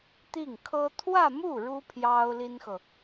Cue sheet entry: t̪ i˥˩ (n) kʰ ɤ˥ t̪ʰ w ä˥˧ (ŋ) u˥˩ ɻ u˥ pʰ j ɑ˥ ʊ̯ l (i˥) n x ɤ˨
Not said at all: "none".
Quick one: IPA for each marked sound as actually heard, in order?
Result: ŋ, m, i˥

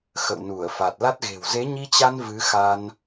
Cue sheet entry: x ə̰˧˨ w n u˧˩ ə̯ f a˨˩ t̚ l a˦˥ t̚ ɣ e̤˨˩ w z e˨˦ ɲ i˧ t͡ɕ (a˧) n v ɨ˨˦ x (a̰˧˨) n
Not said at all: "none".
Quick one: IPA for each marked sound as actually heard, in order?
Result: a˧, a˧

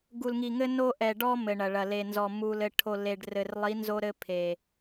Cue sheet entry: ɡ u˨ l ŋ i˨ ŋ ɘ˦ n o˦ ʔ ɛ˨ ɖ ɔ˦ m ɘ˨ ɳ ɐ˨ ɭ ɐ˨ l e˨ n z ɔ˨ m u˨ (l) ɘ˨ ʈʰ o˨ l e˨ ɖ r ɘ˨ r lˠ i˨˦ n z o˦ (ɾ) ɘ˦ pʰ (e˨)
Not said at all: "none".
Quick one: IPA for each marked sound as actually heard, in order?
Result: l, ɾ, e˨

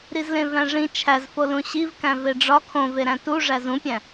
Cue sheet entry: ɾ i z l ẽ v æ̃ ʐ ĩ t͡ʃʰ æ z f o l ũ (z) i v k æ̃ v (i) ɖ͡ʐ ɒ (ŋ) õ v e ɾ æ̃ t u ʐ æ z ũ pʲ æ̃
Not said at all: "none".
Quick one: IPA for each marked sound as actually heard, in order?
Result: ɕ, e, kʰ

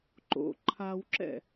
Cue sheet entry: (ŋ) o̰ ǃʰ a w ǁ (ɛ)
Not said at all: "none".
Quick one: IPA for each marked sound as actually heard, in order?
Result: ǃ, ɛ̰

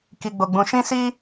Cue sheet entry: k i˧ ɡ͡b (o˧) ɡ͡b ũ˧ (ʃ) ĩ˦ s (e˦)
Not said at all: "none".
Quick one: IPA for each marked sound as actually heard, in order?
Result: o˧, ʃ, i˦

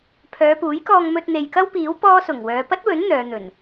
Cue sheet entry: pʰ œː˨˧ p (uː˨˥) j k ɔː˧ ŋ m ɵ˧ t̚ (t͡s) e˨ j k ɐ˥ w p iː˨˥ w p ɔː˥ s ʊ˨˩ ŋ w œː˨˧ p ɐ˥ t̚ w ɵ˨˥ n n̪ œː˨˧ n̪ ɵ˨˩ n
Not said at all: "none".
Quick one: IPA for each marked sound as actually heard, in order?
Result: uː˨˥, n̪

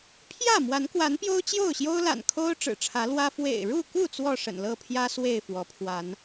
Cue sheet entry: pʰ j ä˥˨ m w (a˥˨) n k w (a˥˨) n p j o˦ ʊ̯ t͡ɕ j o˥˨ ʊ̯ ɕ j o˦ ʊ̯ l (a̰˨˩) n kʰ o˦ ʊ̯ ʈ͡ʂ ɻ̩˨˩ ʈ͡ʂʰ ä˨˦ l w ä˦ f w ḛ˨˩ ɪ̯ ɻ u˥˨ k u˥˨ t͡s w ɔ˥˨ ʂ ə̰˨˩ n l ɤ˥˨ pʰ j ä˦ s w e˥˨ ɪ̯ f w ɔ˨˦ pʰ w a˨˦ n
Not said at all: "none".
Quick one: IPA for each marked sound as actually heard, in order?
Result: a˨˦, a˨˦, a̰˨˩

